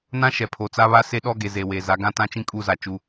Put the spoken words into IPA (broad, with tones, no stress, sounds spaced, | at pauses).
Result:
n ã˦ ʃ ɛ˨ pʰ o˨ t͡s a˦ β a˦ s e˦ ɗ ɔ˦ ɡ e˨ z e˨ w e˨ z a˨˦ ɡ ã˦ t ã˦ t͡ʃ ĩ˦ kʼ uː˦ z a˨ t͡ʃ u˦